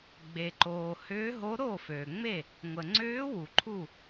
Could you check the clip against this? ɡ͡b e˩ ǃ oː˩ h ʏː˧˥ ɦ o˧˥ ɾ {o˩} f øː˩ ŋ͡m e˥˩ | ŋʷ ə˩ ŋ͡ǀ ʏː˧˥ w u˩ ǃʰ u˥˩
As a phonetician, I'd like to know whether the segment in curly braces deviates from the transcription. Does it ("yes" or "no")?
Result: yes